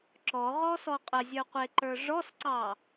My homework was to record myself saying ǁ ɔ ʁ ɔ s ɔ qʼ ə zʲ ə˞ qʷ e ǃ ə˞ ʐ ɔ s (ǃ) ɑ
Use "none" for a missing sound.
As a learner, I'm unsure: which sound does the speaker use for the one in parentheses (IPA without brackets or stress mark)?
ǀ